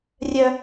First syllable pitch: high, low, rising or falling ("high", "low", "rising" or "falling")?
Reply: high